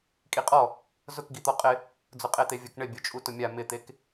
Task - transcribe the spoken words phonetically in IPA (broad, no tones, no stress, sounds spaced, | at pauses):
kʼ i qʼ ɔ | z ʊ k ɡ i t̪ ɔ qʼ ɪ | d͡z ʊ qʼ e t̪ e vʲ ʊ k ɳ ɪ bʲ o t͡ʃʼ u t ʊ mʲ a m ɪ t̪ e k